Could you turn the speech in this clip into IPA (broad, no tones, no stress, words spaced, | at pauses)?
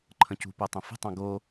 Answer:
ǃʰə̃cṳpotˤə̃ fə̤tˤɑ̃ ɡo